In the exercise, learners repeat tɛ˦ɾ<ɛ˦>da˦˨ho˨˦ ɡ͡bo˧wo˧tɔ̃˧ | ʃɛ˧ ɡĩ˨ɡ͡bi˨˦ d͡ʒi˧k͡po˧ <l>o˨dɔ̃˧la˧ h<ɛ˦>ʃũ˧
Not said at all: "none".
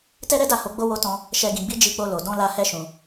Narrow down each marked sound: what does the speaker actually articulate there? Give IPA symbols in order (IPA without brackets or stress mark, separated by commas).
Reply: ɛ˦, l, ɛ˦